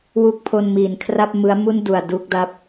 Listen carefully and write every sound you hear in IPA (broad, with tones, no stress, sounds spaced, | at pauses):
w u˦˥ k̚ pʰ o˧ n m iː˩˦ n kʰ r a˥˩ p̚ m ɯ˦˥ a̯ m u˥˩ n d u˨˩ a̯ d u˥˩ k̚ d a˥˩ p̚